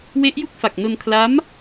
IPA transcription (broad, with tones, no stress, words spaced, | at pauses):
we˦˥ʔju˥˩k̚fa˨˩k̚no˧n kʰla˦˥m